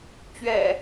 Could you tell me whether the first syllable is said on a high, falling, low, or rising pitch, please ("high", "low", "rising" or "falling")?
low